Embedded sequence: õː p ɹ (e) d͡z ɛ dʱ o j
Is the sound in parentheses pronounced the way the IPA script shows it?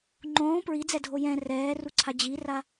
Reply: no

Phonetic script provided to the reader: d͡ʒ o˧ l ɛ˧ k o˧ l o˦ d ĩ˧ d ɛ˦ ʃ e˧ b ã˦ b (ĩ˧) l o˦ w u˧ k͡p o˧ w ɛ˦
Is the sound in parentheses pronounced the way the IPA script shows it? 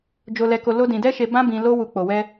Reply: yes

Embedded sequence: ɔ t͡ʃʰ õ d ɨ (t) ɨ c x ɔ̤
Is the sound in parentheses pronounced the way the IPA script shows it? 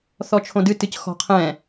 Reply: yes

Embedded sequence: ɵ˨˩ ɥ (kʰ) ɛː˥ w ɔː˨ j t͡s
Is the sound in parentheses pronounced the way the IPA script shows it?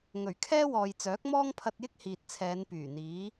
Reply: yes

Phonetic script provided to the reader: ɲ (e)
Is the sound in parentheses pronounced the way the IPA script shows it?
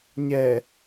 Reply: no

